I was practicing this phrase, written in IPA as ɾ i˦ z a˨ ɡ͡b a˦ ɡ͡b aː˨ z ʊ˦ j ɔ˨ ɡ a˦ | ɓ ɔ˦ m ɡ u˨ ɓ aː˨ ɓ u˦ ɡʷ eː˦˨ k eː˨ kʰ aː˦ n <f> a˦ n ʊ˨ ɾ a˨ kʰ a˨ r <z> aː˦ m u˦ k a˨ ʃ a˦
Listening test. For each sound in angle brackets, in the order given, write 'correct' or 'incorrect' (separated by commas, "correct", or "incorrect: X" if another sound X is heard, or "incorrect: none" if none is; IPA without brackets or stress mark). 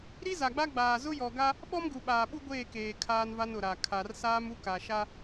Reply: incorrect: v, incorrect: s